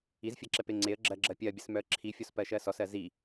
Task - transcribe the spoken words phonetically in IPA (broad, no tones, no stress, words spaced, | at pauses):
izfʲɜǁɛpe ŋ͡ǀeə̯ ɡ͡ǁɜɡ͡ǁɜ pʲɜbʲəsmœə̯ ǁʰifʲɔspɜʃɜ sɔsɜ zi